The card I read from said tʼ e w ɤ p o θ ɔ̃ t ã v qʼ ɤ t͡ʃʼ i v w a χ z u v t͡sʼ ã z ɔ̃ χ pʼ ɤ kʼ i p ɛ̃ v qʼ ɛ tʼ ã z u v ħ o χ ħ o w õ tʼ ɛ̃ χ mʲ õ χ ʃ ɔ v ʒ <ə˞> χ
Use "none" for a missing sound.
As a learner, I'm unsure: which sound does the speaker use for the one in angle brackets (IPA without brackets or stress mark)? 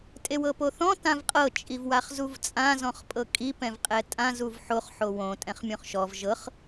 ɤ